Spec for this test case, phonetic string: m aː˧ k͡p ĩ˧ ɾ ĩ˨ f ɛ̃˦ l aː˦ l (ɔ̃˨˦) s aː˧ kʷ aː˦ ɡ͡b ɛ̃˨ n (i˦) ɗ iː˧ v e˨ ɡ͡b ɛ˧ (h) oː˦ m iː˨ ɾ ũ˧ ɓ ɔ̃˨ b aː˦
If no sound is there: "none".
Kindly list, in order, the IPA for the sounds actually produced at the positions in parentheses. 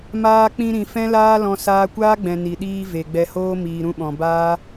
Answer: ɔ̃˧, i˨, h

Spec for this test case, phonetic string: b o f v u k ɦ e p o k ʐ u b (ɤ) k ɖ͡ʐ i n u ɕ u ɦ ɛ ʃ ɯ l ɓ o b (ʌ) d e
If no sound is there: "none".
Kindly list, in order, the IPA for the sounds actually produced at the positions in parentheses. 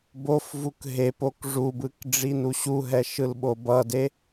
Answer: ɯ, ʌ

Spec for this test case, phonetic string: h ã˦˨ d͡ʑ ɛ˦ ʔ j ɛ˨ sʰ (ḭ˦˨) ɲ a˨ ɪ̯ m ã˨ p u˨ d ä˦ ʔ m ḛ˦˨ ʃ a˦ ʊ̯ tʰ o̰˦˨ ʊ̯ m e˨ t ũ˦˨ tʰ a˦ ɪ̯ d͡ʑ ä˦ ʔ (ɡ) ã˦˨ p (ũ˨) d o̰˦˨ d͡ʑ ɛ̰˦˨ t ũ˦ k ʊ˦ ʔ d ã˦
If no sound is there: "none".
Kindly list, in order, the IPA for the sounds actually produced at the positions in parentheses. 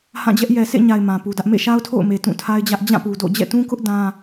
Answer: ḛ˦˨, d͡ʑ, u˨

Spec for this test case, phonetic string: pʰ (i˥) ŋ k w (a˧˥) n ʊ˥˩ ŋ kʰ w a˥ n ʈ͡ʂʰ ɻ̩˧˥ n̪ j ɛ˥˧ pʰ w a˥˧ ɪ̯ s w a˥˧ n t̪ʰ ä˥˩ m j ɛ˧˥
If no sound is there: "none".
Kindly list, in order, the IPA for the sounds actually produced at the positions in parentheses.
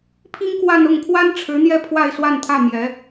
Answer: i˥, a˥˧

